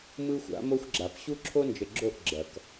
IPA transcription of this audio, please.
m ɯ˦ xʷ a̰˨˦ m o˦ xʷ ɡ͡ǁ a˨ p ɕ u˦ ǁʰ o˦ n d͡ʒ ə˨ ɡ͡ǁ o˦˨ ʔ ɡ͡ǁ ɐ˨ k

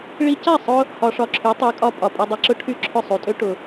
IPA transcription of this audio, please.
ɭ i˧ c a˥˩ sˤ ʊ˧ | h ɒ˧ ʂ ɒ˧ ǁʰ y˩˥ tˤ y˩˥ kʼ ɒ˧ pʼ ɒ˩ pʼ ɛ˧ dˤ ɛ˧ ǁ ʊ˥ ʈʰ y˥˩ ǁʰ ʊ˥˩ sˤ u˩ tʼ ø˥ ʈ ʊ˩

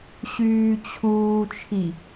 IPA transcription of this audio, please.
ɕ yː t͡ɕʰ uː t͡ʃʰ i

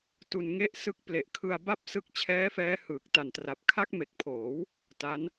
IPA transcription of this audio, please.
t u˧ n ŋ e˥˩ ʔ s ɯ˦˥ k̚ p l e˨˩ ʔ kʰ ɯ˧ a̯ b a˥˩ p̚ s ɯ˦˥ k̚ t͡ɕʰ ɛː˦˥ f ɛː˦˥ h ɯː˨˩ k̚ t a˨˩ n t r a˨˩ p̚ kʰ a˦˥ k̚ m e˨˩ k̚ pʰ oː˩˦ w | t a˦˥ n

